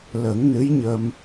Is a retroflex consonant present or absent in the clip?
absent